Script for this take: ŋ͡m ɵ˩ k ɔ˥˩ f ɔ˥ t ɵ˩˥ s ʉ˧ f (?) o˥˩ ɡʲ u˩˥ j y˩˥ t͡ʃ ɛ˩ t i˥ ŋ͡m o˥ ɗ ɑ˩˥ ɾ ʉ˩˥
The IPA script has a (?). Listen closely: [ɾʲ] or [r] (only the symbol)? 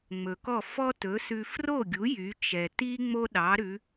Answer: r